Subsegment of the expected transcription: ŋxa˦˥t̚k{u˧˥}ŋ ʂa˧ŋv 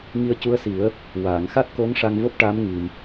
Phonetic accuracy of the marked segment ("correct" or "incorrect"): incorrect